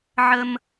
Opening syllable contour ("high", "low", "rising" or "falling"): high